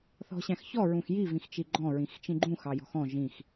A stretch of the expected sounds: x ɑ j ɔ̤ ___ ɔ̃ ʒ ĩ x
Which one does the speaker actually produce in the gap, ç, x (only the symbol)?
x